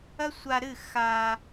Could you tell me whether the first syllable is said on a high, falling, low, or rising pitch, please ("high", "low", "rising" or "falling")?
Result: high